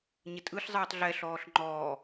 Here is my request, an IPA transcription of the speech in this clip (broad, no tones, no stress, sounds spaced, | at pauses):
ɲ ɪ tʼ ɯ ɬ zˤ ɯː tˤ ɮ ɛ ɬ ɔː ɬ ŋ͡ǃ ɔː